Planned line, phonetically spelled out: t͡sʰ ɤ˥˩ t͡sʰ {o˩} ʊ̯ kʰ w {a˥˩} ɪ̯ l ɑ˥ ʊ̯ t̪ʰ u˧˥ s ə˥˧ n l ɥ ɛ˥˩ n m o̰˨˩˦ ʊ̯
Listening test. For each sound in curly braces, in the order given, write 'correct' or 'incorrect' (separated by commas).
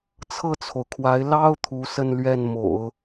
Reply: correct, incorrect